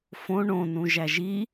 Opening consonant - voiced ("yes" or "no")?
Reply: no